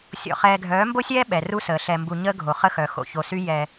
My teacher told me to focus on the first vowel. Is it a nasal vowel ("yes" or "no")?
no